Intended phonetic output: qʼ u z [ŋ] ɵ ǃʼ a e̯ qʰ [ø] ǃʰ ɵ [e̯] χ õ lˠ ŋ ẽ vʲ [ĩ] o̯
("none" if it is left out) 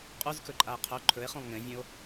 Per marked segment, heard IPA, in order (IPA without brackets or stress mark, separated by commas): k, ɵ, e̯, ẽ